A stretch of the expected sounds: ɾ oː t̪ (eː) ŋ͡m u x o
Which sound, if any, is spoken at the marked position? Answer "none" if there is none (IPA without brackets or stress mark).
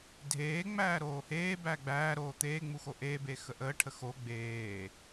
eː